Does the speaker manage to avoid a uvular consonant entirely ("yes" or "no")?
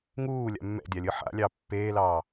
yes